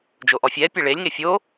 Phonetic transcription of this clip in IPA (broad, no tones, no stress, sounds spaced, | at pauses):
d͡ʒ o ʔ ɔ fʲ ɛ pʲ ɛ ɭ e lʲ ŋ e fʲ o